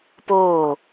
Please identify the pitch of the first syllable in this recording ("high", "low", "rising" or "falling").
falling